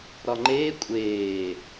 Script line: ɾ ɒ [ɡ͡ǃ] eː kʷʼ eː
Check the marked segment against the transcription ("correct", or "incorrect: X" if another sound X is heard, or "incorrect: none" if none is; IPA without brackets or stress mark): incorrect: ŋ͡ǃ